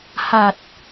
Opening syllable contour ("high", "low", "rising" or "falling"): low